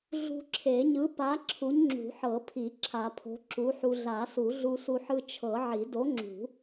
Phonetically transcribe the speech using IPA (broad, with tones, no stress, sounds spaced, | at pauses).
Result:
ɮ ṳ˧ ǁʰ e˨˩˦ ɲ ɯ˨˥ p a˨˥ ǁʰ u˨˥ ɲ ŋ͡ǁ ṳ˨˩˦ ħ ɤ˨˩˦ pʰ i˨˩˦ ǁʰ a˨˩˦ pʰ o̤˨˥ ǁ u˨˥ ħ u˧ ɮ a˨˩˦ s u˨˩˦ ɮ u˧ s u˧ ħ ɯ˧ t͡ʃʰ ɤ˨˩˦ ʕ i˨˩˦ d o˨˥ ŋ͡ǁ ṳ˨˩˦